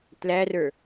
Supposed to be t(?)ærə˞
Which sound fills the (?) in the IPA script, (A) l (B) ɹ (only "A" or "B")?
A